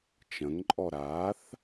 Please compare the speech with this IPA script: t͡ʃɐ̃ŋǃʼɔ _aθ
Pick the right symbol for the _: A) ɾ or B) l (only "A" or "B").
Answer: A